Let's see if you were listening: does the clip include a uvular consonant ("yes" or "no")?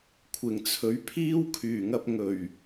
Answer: no